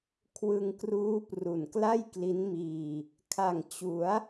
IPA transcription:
kʰwɯ˧ŋkruː˦˥pru˨˩nkla˥˩j kli˦˥nmiː˧ | kʰa˨˩ŋt͡ɕu˩˦a̯

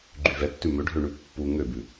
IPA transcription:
ɡ͡ǃyvɛtːʉ mø ɖʱøɳʉpːu ŋøbʉ

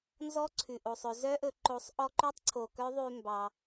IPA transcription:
nzɔ˧˥ ǀʰʉ˩ʔo˩sˤɵ˩˧ zœ˧˥ʔɵ˩˧ ǃo˩˧sˤ ʔɔ˧ǃø˧˥tˤǀʰo˩ kœ˧˥ðˤʉ˧ mbɑ˩

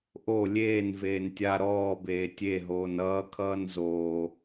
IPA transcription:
ʔo lʲeːn veːntʲa ɾɔː beːtʲe ɦoːnʌː kʰʌːnzoː

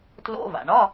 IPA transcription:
tlo̰˧˥˧va̰˩ɳɒ˧˥˧

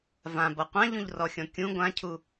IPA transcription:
vãbʌ qʷãʎũʎrɔxʲɔ̃ kʲũ ɡʷãcʰu

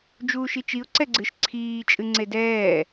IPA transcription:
d͡ʒuːʃit͡ʃiʊ̯ ǀɛɡ͡ǀɨʃ ǀʰiː t͡ʃʼɨŋ͡ǀedɛː

